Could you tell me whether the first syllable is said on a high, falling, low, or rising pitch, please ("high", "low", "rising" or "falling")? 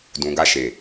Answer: low